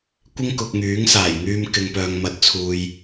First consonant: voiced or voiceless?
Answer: voiceless